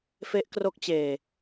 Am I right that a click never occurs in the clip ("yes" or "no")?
yes